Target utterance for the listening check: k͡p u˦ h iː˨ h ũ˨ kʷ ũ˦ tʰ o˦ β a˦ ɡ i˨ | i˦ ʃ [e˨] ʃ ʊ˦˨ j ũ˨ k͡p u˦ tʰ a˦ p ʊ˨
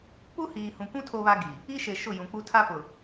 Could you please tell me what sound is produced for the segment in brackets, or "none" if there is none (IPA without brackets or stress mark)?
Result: e˨